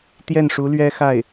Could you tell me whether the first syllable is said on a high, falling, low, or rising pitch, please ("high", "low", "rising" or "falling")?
falling